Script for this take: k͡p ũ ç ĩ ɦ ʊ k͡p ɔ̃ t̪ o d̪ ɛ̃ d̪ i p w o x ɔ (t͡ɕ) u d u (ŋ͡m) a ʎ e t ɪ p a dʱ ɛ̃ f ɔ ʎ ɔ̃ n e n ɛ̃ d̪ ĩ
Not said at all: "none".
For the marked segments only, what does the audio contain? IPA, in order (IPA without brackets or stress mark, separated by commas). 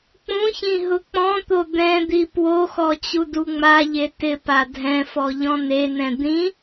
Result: t͡ɕ, ŋ͡m